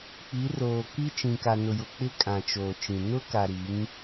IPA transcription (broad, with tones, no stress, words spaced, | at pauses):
k͡pi˨˦roː˨ki˦ t͡ʃĩ˨ka˨nʊ˨jʊ˨ k͡pɪ˦kʼã˨t͡ʃoː˨t͡ʃĩ˨ nʊ˦ka˨ɾi˨˦ŋ